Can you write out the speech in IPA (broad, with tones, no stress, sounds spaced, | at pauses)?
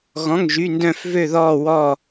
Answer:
ɣ ɔ̃˧˥˧ ŋ ʒ y˧˥˧ n d œ̃˥˧ f v ø˥˧ ð ɔː˥˧ w ɔː˥˧